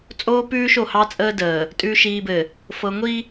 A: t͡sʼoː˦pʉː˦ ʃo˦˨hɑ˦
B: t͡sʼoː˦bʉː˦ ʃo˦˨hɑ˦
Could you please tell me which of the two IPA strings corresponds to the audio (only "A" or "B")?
A